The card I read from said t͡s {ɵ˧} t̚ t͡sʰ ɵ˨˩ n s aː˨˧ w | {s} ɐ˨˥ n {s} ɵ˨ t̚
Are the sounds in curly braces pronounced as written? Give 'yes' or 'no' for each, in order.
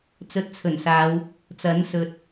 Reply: yes, no, yes

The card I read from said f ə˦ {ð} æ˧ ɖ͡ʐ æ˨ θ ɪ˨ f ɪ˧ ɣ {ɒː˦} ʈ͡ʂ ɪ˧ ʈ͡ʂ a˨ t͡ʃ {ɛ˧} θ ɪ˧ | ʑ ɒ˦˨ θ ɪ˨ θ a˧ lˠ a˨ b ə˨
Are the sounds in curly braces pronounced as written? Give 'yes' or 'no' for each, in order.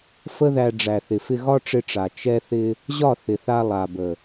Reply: yes, no, yes

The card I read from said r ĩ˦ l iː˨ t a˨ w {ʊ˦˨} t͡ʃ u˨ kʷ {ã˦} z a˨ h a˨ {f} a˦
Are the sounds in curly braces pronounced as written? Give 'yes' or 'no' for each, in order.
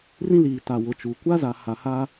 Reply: no, no, no

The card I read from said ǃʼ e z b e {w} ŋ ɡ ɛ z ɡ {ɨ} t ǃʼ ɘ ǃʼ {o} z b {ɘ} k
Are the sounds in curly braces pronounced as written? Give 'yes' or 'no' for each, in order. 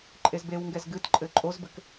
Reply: yes, yes, yes, yes

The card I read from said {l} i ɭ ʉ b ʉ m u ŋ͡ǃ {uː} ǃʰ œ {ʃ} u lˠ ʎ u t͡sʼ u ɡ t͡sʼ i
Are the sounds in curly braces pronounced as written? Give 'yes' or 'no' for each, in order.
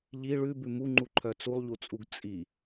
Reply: no, no, no

